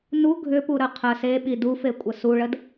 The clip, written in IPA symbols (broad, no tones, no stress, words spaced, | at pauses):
nu ɡʱʏpuɾə qʰə seɓi dufekʷʼə suɭəd